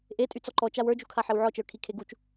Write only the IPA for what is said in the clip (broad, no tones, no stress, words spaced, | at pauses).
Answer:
ʔe tʼyt͡sɔǃɔt͡ʃaw ə˞d͡ʒukʰa ħewʕɔt͡ʃə˞ kʰikʰeɡut͡ʃ